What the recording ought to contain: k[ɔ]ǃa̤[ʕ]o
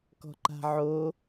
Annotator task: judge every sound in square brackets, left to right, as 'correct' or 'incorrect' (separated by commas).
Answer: incorrect, correct